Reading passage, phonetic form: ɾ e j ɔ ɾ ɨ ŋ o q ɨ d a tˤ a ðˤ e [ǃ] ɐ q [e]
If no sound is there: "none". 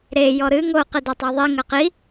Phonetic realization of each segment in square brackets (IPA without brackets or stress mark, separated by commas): ŋ, i